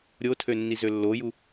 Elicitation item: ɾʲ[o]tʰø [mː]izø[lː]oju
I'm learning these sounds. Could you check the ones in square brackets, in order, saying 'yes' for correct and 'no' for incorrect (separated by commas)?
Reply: yes, no, yes